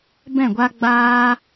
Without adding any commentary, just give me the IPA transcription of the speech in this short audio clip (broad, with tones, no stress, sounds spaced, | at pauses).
b ɛ̃˦˨ ɡʷ a˦ ɡ͡b aː˦